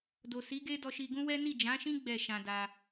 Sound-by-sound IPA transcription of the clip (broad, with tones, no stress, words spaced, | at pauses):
do˨si˨˦ɡe˦dɔ˧ ʃi˧ ɡũ˦wɛ˦ ni˦˨d͡ʒã˨˦ʃĩ˦ ɡ͡bɛ˦˨ ʃã˧da˧